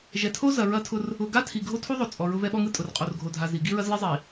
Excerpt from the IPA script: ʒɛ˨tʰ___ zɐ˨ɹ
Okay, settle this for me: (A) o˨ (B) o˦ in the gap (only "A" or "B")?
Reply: B